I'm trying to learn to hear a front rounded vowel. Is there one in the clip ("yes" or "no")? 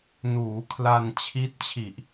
no